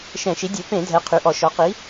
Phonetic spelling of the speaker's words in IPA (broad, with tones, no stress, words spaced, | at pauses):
ʃɛ̃˧˩˧ʃi˩˥ dʲø˩˧pẽ˧˩˧dʱɛ˩˧ qʰy˩˧ʔɔ˧˩˧ ʃɔ˩˥qi˩˥